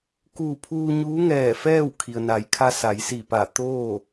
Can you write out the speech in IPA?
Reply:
kuː˧˩pʰuː˧ ɲuː˧˥ŋɛː˧˩fɛː˥˨w kʰi˩ə̯na˩˧jkʰa˧ sa˩˧jsi˧˩pa˧˩t̪oː˥˨

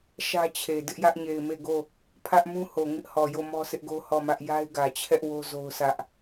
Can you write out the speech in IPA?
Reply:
ʃä˦t͡ɕʰe˨ dɪ˦ʔjä˦ʔɲe˨ɪ̯ me˦˨ɡo˦˨ | pʰä˦ʔmũ˦ ho˨ŋɪ˦ʔhɔ˨jo˦˨ mɔ˦sɪ˦ʔɡo˦ hɔ˦˨mä˦ʔ ja˦ɪ̯ɡä˨t͡ɕʰɛ˦ʔ wo˦zo˦ʊ̯sä˦ʔ

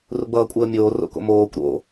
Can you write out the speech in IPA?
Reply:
ruɡ͡bʌːkʷʼəːmʲoː ro̰ko̰moːkʷ ɾo̰

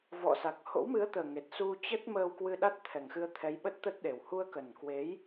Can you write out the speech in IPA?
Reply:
vɔ̰˧˨sa˨˩k̚ ho̰˧˥wmɨ˨˦ə̯t̪əː˨˩ŋe˨˩t̚ su˧t͡ɕə˦˥t̚ məː˧wkwɨ˧ ɗa˦˥t̚t̪ʰɛ˨˩ŋxɨ˧ə̯t̪ʰɛ˨˦j ɓə˦˥t̚t̪ə˦˥t̚ɗe˨˩w hu˧ə̯kə˨˩nkwe˨˦j

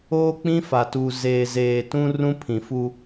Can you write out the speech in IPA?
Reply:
oː˦k͡pĩ˦fa˨tu˨ zeː˨zeː˨tũ˦ rũ˦pʰĩ˨fu˦

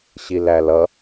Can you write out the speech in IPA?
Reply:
ɕilælʌ

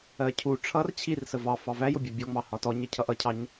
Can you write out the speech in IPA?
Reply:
ɜcʰu ʈ͡ʂʰʌr t͡ɕʰirsə vɑ fɑvæjʊbʲæ bʲɔŋ͡mɑ hɒtɔɲɜ cʰʌʔʌcʰɑɲ

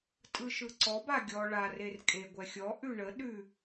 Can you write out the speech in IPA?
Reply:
tʼɯʃɯǀɔb aɡʲɔ ɭar erkʼe ɡʷɛxʲɔ ʔʉɳə ɗʉ

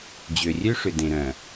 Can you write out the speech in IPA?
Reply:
d͡ʑø˨rʲø˦ʂʏ˨ dẽ˨ɾœ̃˨

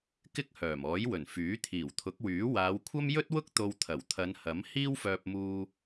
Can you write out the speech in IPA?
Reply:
kɪ˥k̚hœː˨˩mɔː˨˥jwɵ˨˩n fyː˨˥ t̪ʰiː˨˩wt̪ʰʊ˨˥k̚wyː˨˥ waː˨˧wkʷʰɐ˥mjɵ˥t̚wʊ˥k̚ t̪o˧wt̪ʰɐ˨˩w t̪ʰɐ˨˧nhɐ˨˥m hiː˥wfœː˧p̚muː˧

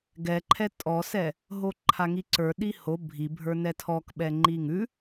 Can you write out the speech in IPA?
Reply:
ɡɛǃʰɛ tʼɔsɛ | ɦoǃʰaŋiǀə˞ ɗiho bʱibʱə˞ nɛtʰɔkɓɛŋ͡ǃi ŋʉ

